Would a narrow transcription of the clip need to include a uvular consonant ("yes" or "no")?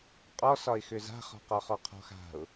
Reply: yes